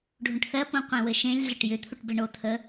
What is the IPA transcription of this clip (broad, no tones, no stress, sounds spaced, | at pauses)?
ɖʱ ũ ʈ θ ɜ p ũ qʷ ẽ w ɘ ʃ ẽ lʲ ɮ ɘ ʈ j ʏ t̪ʰ u ʈ b ɘ ɳ o t̪ʰ ə